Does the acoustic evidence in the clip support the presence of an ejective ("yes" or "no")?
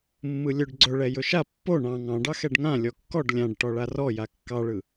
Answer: no